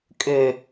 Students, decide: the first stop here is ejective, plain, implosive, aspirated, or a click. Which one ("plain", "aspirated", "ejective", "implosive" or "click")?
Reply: ejective